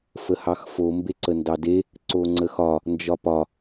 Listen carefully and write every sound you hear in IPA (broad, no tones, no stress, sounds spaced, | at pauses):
f ə h ɑ x f o m b e ǀ ə n d ɑ d e | ǀ o ŋ͡ǀ ə x ɒ | n d͡ʒ ɒ p ɒ